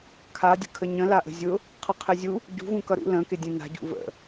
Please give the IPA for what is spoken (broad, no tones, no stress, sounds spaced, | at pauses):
kʰ a dʲ ə̤ kʰ ə ɲ ə̃ l a ʔ ə̤ zʲ ʊ | qʰ ʌ qʰ ɘ zʲ u | ɟ ṳ v ũ k ʌ ɾ ṵ l ə̃ k ɪ dʲ ə̃ n a̤ ɟ ṵ v ə̰